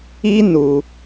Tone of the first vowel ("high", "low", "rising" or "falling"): high